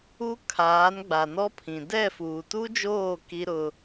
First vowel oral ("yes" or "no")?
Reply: yes